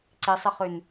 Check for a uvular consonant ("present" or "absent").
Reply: present